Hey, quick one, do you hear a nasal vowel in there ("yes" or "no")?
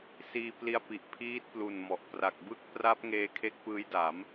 no